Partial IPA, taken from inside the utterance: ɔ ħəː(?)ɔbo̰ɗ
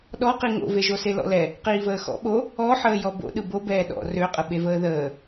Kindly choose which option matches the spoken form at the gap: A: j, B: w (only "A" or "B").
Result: A